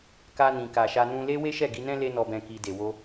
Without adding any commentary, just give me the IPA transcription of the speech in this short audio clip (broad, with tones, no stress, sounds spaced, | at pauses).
k a˧ n ĩ˨ k a˨ ʃ a˧ n ũ˧ l e˦ w e˦ ʃ ɛ˦˨ ɡ i˧ n ɛ̃˦ l e˦ n ɔ˧ b ɛ̃˧ k i˧ d e˨ w o˧